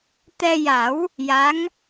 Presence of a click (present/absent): absent